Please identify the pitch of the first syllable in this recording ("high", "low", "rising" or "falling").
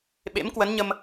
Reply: rising